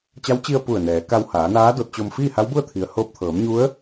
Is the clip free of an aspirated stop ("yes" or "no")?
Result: no